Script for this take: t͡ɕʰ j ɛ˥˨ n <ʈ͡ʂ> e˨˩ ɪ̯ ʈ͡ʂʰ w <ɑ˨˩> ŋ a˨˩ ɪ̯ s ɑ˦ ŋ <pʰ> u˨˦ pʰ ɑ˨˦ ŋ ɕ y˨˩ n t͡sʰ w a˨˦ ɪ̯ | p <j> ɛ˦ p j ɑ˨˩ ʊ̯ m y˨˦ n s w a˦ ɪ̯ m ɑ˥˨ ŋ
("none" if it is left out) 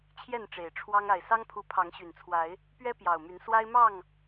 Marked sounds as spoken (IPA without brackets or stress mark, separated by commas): ʈ͡ʂ, ɑ˦, pʰ, ɥ